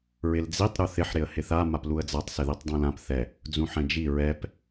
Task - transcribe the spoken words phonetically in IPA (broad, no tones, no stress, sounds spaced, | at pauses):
ɹ ɪ l d͡z i tˤ ɾ u θ ɪ ħ ɾ ɪ ə̯ h ɪ θ a m a p l u ə̯ d͡z a tˤ s ɪ ð i tˤ dˤ ɛ̃ l ã p θ ɛ | d͡z ũ ħ ɛ̃ d͡ʒ i ɹ ɛ p